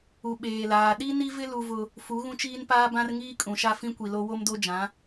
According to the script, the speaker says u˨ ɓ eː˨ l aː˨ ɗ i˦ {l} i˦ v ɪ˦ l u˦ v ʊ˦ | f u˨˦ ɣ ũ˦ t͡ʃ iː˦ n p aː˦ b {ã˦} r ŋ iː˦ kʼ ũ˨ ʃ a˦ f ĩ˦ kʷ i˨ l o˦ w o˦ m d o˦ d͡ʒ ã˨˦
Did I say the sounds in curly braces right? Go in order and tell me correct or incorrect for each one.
incorrect, correct

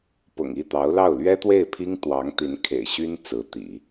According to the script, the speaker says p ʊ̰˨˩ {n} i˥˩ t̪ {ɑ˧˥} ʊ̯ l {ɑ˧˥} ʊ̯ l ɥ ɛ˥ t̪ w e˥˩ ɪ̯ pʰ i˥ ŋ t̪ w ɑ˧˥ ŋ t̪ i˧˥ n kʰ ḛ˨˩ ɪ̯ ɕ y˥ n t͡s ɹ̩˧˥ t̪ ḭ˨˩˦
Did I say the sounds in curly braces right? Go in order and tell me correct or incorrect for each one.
incorrect, correct, incorrect

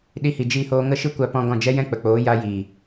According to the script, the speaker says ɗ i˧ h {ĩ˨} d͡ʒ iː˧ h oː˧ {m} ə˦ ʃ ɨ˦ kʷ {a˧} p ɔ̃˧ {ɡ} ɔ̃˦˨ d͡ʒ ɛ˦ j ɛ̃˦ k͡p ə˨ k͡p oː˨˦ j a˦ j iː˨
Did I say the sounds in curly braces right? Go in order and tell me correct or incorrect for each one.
incorrect, incorrect, correct, correct

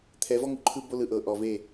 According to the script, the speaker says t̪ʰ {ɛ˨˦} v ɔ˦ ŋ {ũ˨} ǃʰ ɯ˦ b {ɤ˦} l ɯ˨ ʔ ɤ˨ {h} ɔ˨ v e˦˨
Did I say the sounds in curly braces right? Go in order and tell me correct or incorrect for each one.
correct, incorrect, incorrect, incorrect

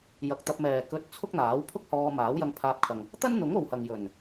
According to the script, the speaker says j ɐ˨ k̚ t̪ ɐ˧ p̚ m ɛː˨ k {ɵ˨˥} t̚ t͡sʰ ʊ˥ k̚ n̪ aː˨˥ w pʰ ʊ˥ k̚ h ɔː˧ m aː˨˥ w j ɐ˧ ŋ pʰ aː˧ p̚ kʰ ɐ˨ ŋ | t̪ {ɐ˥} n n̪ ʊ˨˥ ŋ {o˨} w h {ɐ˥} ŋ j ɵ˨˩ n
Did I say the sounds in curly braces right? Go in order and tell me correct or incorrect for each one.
incorrect, correct, correct, incorrect

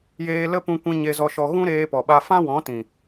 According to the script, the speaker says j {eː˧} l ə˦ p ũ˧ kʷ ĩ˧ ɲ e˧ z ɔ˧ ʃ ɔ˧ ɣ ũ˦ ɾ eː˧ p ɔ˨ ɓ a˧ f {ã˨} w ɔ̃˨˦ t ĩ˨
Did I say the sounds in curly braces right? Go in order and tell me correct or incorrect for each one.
correct, incorrect

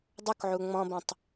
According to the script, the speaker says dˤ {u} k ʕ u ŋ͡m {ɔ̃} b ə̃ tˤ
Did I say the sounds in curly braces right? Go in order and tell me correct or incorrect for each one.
correct, correct

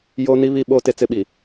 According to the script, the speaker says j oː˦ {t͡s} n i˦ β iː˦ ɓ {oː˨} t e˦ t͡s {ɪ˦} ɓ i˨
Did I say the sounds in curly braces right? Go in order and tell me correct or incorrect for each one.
incorrect, incorrect, correct

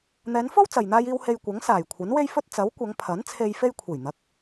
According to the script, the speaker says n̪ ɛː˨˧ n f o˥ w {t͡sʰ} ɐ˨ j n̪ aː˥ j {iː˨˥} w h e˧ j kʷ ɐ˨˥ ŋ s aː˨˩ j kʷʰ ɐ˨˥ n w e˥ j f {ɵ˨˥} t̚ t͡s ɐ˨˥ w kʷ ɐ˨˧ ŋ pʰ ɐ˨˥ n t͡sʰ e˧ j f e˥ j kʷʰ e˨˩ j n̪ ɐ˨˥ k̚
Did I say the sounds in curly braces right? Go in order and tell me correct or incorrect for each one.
incorrect, incorrect, incorrect

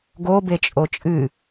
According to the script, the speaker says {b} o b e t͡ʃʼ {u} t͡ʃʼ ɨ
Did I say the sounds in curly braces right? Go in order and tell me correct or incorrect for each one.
incorrect, incorrect

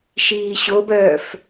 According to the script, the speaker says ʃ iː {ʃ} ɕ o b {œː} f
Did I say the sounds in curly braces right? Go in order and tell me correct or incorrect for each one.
incorrect, correct

